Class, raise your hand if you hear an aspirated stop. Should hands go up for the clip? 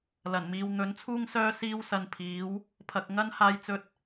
yes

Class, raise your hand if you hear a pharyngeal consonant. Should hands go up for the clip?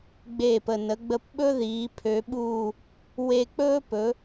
no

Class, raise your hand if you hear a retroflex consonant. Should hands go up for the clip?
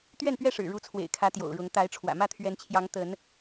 yes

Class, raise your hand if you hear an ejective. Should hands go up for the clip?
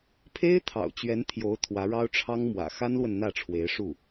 no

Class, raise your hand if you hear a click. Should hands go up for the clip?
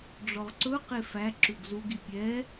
yes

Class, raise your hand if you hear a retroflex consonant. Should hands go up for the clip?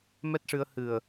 yes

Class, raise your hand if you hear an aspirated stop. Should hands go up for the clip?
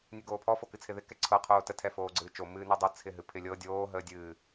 yes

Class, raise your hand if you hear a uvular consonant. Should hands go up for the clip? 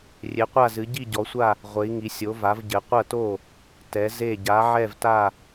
yes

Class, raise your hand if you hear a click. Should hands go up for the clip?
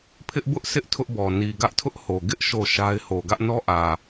no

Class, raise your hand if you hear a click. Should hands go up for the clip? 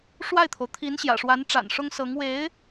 no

